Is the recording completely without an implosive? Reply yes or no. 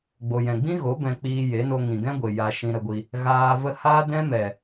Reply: yes